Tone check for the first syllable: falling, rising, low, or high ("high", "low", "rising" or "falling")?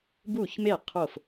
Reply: falling